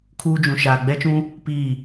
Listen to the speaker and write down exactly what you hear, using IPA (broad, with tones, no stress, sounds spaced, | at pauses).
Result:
kʰ uː˦ d͡ʒ ũ˨ ʃ aː˨ ɡ͡b ɛ˦ t͡ʃ ũ˦ | p i˦˨